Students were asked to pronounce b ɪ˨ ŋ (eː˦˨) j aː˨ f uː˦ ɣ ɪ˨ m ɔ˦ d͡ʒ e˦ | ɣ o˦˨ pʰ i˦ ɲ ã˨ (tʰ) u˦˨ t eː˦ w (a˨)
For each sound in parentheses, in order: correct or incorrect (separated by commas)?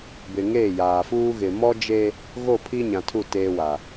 correct, correct, correct